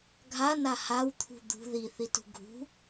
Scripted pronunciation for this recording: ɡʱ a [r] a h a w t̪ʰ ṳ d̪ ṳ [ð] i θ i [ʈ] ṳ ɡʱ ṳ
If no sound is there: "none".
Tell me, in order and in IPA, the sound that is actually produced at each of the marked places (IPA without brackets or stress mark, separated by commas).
n, ð, t